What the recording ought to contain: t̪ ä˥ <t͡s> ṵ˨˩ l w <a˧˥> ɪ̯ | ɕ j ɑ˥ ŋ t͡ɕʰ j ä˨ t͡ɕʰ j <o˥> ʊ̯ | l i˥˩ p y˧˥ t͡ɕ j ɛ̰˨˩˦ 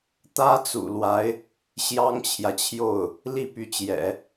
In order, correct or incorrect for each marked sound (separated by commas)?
correct, correct, incorrect